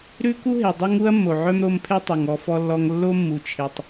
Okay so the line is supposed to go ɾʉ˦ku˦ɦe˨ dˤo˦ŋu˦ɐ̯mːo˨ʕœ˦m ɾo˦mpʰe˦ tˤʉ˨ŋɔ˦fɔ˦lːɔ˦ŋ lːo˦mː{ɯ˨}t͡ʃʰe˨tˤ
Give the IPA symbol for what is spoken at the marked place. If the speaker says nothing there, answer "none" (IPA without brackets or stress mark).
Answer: u˨